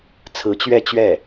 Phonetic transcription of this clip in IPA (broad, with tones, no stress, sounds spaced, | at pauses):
t͡sʰ ɹ̩˧˥ t͡ɕ ɥ ɛ˥˧ t͡ɕ ɥ ɛ˥˩